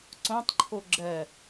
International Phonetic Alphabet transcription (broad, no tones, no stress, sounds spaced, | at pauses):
ǀ õ tˤ ǃʰ o ɡ͡ǁ ɜ